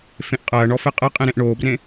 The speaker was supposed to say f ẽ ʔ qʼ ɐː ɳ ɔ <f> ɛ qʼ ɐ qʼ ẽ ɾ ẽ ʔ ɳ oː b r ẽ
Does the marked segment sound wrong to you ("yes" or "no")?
no